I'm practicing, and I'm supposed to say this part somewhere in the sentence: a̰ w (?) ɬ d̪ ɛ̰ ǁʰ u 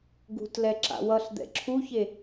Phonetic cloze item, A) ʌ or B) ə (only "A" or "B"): A